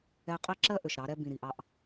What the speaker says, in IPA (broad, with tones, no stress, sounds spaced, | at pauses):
ɛ˧ qʼ ɛ˦ ǁ ɜ˦ ʔ ø˨ ʃ ɾ ɑ˨˦ ɾ ɛ˦ b ĩ˨ ɾ i˨ ʔ ɑ˧ ʔ